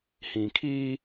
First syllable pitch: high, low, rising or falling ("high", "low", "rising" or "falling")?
low